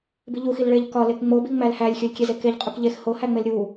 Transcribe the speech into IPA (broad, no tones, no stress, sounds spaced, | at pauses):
b i ʎ u x i l ɭ e ʎ k ɒ l e k ŋ͡m o b i ŋ͡m æ l h æ lʲ xʲ o lʲ kʲ e z e k e ʎ qʼ u k ʎ e x h o h æ ŋ͡m e l ɾʲ u